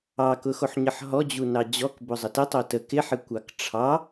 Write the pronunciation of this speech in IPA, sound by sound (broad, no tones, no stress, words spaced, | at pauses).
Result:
ɑkʊxoħɲəħ ɦɔd͡ʑunɑ d͡ʑɔkbʊzˤə tɪtˤo tə kɪħɪkʷɑk ʈ͡ʂʰɑ